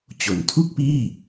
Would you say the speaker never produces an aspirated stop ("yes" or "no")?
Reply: no